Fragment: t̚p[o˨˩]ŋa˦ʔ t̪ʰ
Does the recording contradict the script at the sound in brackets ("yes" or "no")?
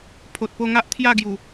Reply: yes